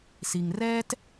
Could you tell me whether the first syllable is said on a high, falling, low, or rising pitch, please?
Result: low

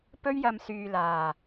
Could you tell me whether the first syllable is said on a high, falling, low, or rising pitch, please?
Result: high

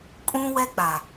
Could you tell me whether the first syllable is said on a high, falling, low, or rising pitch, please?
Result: high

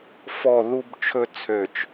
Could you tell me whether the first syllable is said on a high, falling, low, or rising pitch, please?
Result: falling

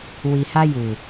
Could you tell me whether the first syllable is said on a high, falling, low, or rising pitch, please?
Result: low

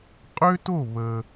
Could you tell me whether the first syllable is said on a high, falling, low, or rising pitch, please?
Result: high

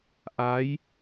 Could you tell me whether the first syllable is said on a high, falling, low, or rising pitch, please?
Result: rising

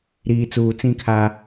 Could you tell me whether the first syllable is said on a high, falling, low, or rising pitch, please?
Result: low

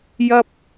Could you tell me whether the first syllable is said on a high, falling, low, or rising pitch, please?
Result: high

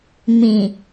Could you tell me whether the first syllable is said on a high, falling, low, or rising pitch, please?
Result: low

